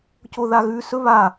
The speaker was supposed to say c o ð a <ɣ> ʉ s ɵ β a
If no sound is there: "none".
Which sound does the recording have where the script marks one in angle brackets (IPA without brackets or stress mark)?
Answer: ɣ